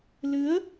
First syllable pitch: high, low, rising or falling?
rising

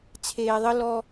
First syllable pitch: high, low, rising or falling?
low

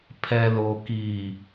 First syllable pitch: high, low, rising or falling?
low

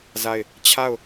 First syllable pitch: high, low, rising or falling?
falling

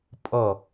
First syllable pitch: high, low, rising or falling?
falling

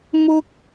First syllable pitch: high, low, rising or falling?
high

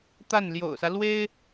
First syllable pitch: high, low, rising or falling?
falling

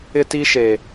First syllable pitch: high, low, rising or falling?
high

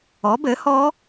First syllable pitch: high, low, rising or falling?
rising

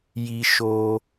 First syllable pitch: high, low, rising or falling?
high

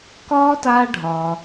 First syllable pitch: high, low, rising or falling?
high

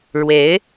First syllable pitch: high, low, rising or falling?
rising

